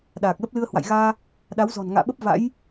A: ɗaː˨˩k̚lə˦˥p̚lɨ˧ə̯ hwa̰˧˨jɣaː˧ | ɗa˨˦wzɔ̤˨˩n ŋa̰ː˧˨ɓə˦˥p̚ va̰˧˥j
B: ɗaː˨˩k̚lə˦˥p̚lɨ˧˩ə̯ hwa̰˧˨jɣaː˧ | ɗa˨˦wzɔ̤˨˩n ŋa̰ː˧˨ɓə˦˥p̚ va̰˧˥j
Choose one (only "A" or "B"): A